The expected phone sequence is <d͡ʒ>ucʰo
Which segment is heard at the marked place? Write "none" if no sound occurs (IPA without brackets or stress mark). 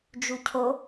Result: d͡ʒ